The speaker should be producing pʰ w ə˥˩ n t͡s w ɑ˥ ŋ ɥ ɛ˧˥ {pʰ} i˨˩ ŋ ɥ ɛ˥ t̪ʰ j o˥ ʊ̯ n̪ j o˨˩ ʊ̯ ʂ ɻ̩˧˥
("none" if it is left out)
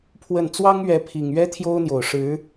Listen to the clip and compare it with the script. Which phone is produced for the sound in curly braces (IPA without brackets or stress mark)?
pʰ